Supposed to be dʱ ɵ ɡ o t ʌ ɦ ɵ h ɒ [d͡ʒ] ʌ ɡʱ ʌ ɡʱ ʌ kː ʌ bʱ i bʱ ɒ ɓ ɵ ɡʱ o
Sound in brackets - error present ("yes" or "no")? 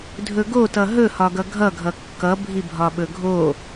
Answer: yes